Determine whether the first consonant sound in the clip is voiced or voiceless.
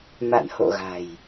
voiced